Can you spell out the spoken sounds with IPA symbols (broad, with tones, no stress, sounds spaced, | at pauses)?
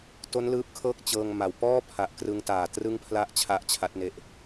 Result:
t o˦˥ n l ɯː˦˥ p̚ kʰ ɤː˥˩ k̚ t͡ɕ ɤː˧ ŋ m a˨˩ w p ɔː˥˩ pʰ a˨˩ ʔ k r ɯ˧ ŋ t aː˨˩ t r ɯ˥˩ ŋ pʰ l a˥˩ ʔ t͡ɕʰ a˦˥ ʔ t͡ɕʰ a˦˥ t̚ n e˦˥ ʔ